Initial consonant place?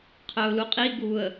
uvular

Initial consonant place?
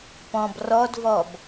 labial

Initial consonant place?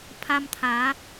labial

